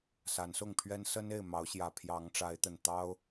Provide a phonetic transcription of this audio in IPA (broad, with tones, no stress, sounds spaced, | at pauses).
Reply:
s a˨˦ n s ʊ˥˨ ŋ pʰ ɥ ɛ˦ n s ə˦ n e˥˨ ɪ̯ m ɑ˨˦ ʊ̯ ɕ j ä˨˩ pʰ j ɑ˨˦ ŋ ʈ͡ʂ a˨˦ ɪ̯ t̪ ə˨˩ n t̪ ɑ˦ ʊ̯